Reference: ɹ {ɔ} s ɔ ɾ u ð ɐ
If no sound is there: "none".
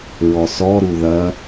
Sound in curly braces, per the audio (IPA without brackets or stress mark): ɔ